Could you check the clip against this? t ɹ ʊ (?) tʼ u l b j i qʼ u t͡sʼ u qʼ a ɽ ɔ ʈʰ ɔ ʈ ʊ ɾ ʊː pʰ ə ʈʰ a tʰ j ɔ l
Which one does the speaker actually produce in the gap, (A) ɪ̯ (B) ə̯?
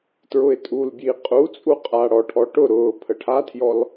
A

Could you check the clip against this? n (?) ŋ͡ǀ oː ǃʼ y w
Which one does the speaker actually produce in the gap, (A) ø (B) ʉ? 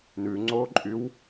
B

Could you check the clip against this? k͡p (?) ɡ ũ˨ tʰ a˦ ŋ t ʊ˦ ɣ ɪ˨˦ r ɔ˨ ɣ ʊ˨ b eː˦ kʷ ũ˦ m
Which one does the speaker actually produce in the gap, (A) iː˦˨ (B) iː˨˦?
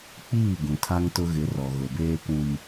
A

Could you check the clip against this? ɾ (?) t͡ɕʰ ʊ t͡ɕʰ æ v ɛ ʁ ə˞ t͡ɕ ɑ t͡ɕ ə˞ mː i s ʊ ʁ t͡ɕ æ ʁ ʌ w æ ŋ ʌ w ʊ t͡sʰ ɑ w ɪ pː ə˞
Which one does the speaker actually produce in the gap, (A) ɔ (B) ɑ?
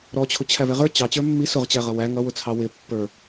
A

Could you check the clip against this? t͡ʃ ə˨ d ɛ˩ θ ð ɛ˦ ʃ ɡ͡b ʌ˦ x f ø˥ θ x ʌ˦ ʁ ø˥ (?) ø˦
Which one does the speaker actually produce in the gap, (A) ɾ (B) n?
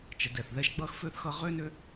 B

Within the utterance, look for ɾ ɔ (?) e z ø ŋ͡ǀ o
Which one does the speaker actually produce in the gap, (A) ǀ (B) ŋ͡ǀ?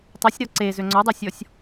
A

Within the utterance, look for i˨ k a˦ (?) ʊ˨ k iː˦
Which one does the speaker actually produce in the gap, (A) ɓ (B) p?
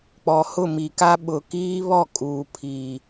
A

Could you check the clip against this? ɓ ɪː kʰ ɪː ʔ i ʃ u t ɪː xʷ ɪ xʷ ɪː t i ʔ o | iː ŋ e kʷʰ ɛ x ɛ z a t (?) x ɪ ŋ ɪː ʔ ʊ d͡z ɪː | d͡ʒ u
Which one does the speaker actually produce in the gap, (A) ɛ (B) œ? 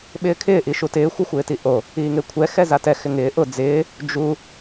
A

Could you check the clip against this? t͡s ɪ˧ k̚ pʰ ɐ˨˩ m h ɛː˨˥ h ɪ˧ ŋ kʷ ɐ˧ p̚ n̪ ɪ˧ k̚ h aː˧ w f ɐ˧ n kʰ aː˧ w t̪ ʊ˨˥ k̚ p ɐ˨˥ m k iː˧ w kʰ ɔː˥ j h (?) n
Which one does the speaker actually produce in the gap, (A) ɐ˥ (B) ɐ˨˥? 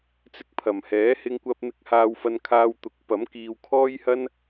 A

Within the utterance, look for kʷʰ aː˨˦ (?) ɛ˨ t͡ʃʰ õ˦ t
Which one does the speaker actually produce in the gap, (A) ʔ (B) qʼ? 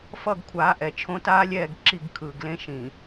A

